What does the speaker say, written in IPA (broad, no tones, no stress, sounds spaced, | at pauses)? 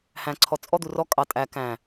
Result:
h æ̃ ǀʰ ɔ t͡sʼ ɔ d̪ u r ɔ kʼ ɑ tʼ æ k æ̃